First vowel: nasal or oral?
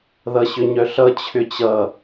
oral